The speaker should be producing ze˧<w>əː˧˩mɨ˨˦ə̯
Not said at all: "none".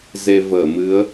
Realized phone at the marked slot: v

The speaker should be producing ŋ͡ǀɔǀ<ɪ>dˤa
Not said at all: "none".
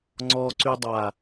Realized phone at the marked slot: y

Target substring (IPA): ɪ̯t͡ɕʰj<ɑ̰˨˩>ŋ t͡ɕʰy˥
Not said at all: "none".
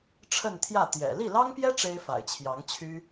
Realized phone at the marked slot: ɑ˧˥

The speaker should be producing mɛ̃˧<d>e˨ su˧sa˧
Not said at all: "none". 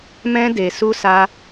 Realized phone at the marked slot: d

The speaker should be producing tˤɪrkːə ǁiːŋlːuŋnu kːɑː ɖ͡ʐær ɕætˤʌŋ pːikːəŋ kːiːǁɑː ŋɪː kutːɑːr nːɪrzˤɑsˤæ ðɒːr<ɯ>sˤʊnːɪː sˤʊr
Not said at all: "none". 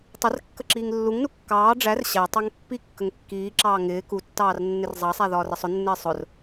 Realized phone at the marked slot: ə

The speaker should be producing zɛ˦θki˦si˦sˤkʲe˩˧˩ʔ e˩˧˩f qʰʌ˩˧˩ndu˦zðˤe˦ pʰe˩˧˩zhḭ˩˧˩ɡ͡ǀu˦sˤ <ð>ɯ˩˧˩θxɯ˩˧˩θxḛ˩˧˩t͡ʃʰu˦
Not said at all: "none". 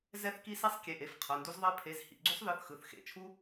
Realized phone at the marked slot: ð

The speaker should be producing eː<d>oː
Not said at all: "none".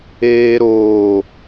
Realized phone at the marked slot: ɾ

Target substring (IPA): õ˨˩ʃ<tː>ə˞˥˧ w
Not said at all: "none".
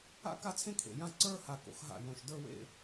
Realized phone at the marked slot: d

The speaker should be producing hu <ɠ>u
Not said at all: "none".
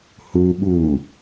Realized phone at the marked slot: ɓ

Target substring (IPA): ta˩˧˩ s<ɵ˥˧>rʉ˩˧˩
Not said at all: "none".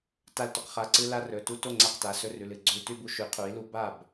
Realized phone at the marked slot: ɵ˥˧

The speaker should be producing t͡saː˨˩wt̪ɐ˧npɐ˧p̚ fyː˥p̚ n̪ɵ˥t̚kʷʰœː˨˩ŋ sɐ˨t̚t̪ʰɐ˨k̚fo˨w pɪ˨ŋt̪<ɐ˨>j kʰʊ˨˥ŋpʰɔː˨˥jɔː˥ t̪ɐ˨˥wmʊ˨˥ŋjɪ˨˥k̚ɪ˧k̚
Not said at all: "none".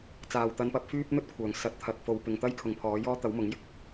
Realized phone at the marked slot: ɐ˥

